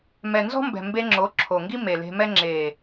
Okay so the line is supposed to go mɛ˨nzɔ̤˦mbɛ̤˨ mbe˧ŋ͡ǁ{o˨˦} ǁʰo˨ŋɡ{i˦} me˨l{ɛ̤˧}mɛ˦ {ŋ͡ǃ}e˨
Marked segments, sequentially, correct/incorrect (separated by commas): correct, correct, incorrect, incorrect